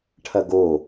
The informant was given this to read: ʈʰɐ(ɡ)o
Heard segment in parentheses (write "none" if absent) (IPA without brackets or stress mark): ɡ